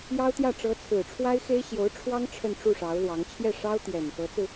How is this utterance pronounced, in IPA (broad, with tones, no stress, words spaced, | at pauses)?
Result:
jɑ˥ʊ̯t̪jä˥˩ ʈ͡ʂɤ˧˥t͡sʰɹ̩˨˩ʈ͡ʂʰwa˥ɪ̯xe˥ɪ̯ ɕjo˧˥ʊ̯ʈ͡ʂʰwɑ˥ŋ ʈ͡ʂʰə˥˧nʈ͡ʂu˥˩ʂɑ˧˥ʊ̯ lwɑ˧˥ŋ t͡ɕʰjɛ˥˩ ʂɑ˥ʊ̯t̪jɛ˨˩nfɤ˧˥t͡sɹ̩˧